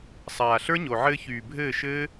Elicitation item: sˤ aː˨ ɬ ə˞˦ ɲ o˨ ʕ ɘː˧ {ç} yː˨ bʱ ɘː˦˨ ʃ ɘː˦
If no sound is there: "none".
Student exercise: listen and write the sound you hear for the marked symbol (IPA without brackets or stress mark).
ç